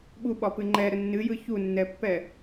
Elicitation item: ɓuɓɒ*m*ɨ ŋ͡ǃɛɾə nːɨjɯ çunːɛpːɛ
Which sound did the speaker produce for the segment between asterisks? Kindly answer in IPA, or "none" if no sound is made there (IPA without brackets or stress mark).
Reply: p